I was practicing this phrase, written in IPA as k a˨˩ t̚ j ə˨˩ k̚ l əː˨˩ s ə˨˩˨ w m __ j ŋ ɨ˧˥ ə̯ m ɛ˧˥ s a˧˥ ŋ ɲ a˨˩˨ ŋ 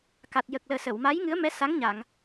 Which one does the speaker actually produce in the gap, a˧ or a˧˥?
a˧˥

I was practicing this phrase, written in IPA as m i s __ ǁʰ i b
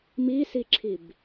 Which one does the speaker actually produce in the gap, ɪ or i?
i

